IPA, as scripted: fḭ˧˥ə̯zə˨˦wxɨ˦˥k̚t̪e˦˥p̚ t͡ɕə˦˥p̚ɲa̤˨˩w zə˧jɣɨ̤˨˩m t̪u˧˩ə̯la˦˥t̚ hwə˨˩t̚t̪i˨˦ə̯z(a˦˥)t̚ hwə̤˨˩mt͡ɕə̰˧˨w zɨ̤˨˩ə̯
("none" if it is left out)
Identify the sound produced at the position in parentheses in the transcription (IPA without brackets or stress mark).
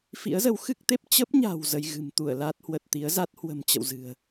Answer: a˦˥